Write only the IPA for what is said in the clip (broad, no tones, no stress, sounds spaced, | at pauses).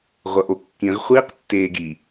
ʁʷ ʌ ʔ o kː ĩ ʁ χʷ iː q tː eː ɡ i